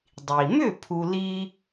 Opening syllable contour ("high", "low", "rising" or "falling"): low